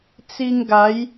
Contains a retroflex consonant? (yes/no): no